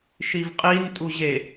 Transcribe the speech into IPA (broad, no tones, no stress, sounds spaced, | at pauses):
ʃ i v qʼ i n tʼ u ʑ e